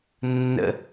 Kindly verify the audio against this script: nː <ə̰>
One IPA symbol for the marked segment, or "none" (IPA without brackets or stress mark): ə̰